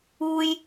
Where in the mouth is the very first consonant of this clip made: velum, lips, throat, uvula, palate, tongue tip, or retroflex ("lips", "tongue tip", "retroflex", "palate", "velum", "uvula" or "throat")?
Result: palate